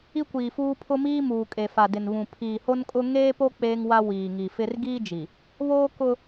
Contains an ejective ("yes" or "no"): yes